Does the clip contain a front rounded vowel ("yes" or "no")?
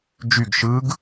yes